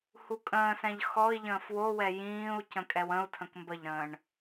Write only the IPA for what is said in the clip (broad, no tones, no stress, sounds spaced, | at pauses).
h u kʼ ə̃ː s ɛ̃ ʎ x ɔ i̯ ʎ ə̃ː f w o w ɛ j ĩː u̯ c ə̃ kʼ ɛ w ə̃ u̯ tʰ ə̃ k m b ə ʎ ɾ ə̃ː ɳ